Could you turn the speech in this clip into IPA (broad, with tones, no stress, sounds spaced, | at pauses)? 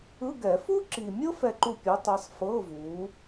ɯ˧˥˧ ɡ ɛ˨˩˦ f u˥ ǁ i˨ mʲ ɤ˥ f ɛ˦˨ ǃ u˦˨ pʲ o˨˦ tˤ ɤ˨˦ sˤ f ɤ˧˥˧ v u˨˦